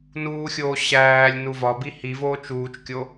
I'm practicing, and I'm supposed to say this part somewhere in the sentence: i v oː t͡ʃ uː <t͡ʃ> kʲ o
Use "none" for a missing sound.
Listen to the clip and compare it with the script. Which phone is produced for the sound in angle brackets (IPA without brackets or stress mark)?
t͡ʃ